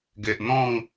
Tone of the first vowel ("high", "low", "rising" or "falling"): low